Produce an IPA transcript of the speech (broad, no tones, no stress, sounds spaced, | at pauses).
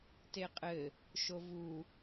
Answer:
t e qʼ ɘ | ʃ o v u